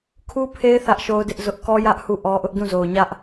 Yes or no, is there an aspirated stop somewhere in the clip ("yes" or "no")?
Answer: yes